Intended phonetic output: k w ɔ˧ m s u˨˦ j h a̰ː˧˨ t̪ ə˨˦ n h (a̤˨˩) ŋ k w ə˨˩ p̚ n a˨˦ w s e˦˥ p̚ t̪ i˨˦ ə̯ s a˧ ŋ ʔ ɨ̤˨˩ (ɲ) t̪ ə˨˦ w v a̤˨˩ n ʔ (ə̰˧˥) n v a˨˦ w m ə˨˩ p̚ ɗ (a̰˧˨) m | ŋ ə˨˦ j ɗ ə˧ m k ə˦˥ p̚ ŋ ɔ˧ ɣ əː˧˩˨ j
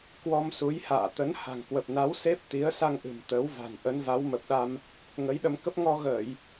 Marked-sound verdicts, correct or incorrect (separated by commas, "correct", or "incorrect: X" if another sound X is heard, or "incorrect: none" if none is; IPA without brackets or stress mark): correct, incorrect: m, incorrect: ə˨˦, incorrect: a˧